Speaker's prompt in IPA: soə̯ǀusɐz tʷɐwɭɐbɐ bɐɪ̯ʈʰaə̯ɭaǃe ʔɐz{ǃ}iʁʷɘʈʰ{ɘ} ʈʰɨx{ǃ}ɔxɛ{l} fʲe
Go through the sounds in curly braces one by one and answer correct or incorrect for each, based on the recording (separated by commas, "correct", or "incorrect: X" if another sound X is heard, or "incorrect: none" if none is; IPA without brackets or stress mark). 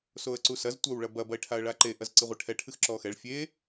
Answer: incorrect: ǀ, incorrect: ɛ, incorrect: ǁ, incorrect: ɭ